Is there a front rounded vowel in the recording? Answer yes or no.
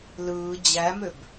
yes